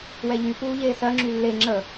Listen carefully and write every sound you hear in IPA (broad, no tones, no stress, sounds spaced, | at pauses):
w ɛ ʎ y f uː ʎ eː s ɜ ŋ͡ǁ y lː e ŋ͡ǁ ə